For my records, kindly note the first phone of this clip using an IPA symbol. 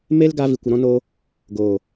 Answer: m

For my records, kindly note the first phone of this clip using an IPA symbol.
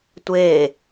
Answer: tʷ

